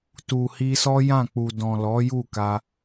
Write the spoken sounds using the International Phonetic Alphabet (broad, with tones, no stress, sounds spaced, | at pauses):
t u˨ h i˧ s ɔ˦ j ã˦˨ k͡p u˨ d ɔ̃˨ l ɔ˨˦ j u˦˨ k a˧